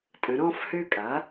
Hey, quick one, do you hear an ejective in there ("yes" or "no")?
yes